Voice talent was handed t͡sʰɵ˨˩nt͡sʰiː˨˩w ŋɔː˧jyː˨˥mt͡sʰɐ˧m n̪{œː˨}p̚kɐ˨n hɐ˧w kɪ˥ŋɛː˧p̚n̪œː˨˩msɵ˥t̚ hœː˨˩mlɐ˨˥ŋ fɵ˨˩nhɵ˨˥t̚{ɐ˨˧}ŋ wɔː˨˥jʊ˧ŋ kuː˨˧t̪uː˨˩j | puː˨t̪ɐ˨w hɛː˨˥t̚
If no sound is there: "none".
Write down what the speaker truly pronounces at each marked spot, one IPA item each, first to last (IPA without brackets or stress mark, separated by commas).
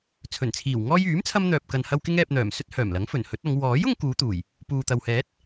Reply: œː˨, ɐ˨˧